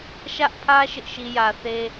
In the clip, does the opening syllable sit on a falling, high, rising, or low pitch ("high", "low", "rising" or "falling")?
high